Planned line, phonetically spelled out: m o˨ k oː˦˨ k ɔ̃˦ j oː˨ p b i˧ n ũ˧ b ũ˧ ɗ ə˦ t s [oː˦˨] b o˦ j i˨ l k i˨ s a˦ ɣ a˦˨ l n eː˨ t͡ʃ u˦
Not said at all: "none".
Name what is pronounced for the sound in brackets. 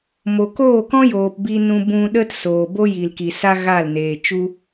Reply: oː˨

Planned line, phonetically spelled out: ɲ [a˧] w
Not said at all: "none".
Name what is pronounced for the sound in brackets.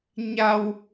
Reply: a˧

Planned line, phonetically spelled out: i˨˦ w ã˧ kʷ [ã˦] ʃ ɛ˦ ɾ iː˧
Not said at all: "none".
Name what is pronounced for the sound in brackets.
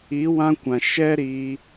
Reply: ã˨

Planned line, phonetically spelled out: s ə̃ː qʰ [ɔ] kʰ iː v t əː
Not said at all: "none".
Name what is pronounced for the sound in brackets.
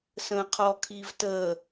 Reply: ɔ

